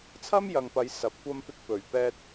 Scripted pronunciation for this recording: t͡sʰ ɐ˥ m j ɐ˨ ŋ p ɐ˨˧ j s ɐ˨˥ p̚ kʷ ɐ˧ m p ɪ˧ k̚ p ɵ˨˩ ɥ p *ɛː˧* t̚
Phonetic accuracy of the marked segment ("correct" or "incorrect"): correct